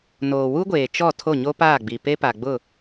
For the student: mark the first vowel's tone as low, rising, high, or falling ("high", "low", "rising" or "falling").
low